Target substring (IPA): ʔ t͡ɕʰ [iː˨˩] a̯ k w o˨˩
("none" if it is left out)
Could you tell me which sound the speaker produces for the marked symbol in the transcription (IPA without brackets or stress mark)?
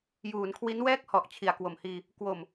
i˨˩